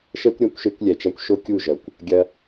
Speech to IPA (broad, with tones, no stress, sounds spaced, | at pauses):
ʃ ɛ˦ kʷ ɾʲ a˦ kʷ ʃ e˦ kʷ lʲ ɛ˨ t͡ʃ a˦ kʷ ʃ o˦ kʲ u˦˨ ʒ ɐ˨ kʷ | ɡʲ ɐ˦